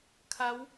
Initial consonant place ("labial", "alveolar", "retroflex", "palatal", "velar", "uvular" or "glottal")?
velar